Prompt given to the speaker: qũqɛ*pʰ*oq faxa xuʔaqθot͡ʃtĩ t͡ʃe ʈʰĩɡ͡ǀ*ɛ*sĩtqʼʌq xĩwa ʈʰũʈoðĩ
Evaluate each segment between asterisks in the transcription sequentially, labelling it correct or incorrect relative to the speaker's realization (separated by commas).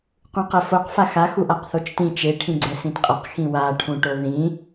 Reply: incorrect, correct